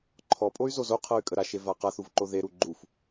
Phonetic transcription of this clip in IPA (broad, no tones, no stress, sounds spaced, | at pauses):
ǃʰ ɔ pʼ o y̯ z o z o qʰ ɤ y̯ kʼ ə ɾ a ʃ e v a q a θ u v ǃ o ð e ɾ u ɡ͡ǃ u f